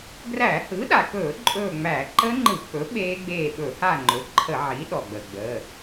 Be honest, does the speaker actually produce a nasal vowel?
no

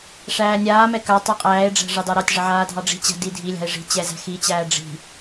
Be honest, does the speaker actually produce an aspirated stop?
no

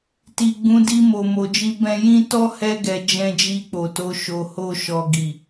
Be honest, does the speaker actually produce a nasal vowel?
yes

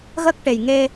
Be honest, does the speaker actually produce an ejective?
no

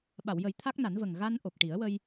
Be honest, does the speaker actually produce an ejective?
no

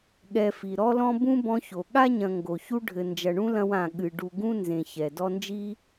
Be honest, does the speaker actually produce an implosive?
yes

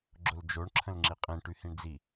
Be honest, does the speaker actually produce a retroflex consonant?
yes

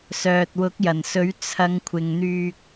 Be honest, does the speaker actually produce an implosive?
no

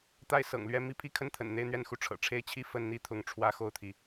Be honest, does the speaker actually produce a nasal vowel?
no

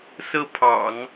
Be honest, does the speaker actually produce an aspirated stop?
yes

